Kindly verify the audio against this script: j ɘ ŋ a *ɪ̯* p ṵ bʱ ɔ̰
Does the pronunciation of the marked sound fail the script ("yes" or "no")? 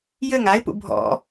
no